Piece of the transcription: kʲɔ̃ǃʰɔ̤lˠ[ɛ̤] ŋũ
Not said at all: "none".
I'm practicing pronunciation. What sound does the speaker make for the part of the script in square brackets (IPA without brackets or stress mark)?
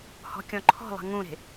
ɛ̤